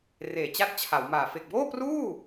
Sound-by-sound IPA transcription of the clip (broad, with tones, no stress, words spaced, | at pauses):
reː˨˩t͡ɕa˥˩t̚t͡ɕʰa˩˦wmaː˨˩ fe˨˩k̚boː˥˩pruː˥˩